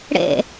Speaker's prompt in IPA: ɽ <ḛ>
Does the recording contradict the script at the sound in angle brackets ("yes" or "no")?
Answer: no